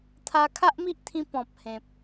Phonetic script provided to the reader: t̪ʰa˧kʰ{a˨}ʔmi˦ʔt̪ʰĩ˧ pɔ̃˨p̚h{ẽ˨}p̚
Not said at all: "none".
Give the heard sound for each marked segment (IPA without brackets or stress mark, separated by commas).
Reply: a˦, ẽ˨